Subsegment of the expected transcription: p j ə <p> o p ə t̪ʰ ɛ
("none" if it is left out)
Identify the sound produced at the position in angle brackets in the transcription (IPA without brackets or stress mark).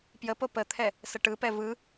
p